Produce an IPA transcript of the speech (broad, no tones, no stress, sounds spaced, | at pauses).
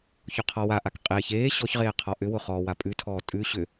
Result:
ç ʊ qʰ ɔ w a ʔ a k qʼ eː ç eː ɕ ɔ ç ʁ eː qʰ ɔ ʔ ʏ w ʊ χ ɔː w a pʼ ʉ tʰ ɔː tʼ ʉ ɕ ʏ